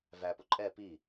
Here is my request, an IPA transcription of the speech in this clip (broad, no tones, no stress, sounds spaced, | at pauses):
v æ p ʊ ǃʼ ɛ p i